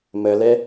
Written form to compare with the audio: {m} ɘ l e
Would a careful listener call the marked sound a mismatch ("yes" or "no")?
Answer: no